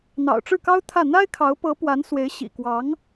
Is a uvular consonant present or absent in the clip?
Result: absent